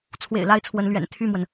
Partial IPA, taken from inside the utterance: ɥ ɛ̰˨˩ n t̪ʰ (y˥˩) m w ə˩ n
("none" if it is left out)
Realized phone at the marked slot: y˥˩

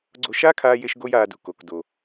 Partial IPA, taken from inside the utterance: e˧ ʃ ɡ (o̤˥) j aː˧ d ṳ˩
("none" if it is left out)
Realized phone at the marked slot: o˥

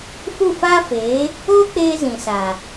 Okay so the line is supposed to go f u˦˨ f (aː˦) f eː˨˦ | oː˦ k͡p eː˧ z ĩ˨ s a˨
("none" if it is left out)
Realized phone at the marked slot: aː˦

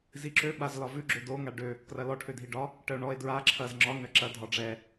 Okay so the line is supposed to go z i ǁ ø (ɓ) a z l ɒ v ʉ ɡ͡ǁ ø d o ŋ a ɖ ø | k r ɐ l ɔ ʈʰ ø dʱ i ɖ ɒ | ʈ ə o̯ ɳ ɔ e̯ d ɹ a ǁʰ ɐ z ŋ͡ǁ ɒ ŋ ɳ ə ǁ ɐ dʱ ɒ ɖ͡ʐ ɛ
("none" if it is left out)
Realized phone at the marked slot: ɓ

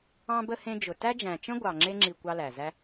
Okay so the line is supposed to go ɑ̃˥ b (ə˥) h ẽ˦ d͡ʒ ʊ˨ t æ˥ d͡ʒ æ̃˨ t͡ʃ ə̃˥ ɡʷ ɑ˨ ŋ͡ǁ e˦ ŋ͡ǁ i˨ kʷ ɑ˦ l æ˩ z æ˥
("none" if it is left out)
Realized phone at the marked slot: ə˥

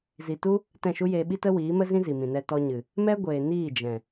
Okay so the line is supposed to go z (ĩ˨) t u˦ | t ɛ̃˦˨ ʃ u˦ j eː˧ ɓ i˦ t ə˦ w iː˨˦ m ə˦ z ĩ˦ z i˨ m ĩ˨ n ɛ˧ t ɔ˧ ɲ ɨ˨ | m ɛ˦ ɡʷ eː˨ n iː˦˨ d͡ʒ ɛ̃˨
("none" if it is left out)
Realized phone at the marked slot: i˨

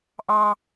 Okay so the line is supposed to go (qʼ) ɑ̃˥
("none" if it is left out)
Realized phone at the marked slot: ʔ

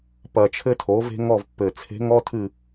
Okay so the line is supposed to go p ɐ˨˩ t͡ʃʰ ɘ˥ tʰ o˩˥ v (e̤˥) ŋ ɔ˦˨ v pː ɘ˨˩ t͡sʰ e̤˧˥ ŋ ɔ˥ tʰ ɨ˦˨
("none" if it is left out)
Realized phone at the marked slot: e̤˥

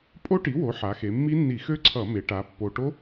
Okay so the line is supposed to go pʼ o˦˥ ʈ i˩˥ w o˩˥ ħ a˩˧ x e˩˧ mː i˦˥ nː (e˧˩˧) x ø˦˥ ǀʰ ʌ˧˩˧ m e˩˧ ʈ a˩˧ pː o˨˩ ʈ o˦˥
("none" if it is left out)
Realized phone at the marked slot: i˧˩˧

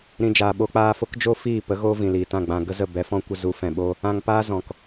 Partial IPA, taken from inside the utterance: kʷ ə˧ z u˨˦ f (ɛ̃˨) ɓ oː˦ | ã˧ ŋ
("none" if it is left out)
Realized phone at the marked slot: ɛ̃˨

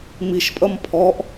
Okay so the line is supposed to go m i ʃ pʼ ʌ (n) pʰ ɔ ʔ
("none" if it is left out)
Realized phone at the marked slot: m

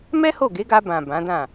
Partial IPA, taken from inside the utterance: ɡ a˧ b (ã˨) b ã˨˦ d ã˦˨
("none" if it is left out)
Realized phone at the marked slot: ã˨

